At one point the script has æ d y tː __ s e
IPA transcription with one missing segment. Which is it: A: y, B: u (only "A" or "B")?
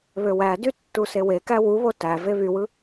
B